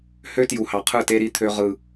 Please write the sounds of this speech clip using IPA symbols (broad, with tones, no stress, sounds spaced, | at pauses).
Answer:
h ø˦ t j u˨ h ɑ˨ qʰ ɯ˦˨ t e˦ ɾ i˦ t̪ʰ ø˦ ʁ ɯ˦